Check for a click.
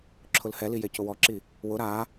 present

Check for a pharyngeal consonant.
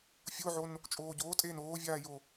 present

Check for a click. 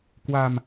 absent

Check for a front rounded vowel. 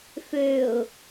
present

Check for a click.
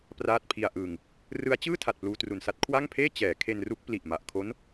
absent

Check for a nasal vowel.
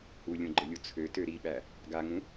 present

